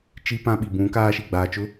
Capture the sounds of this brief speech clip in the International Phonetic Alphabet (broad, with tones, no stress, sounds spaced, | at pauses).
t͡ʃ i˦ p ã˦ ɓ i˨ b ũ˨˦ k aː˦ ʃ i˨ ɡ͡b aː˨ t͡ʃ ʊ˦